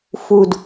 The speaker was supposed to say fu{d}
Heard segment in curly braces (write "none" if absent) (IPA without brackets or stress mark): d